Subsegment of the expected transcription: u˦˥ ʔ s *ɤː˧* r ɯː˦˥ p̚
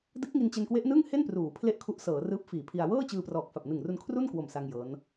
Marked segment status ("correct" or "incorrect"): incorrect